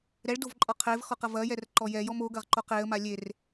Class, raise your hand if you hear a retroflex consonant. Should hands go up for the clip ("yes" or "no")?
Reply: yes